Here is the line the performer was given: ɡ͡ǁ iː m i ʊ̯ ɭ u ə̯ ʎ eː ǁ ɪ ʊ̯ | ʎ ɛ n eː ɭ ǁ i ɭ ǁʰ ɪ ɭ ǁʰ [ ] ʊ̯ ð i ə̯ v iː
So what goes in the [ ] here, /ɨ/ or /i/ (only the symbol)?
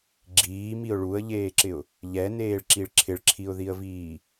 i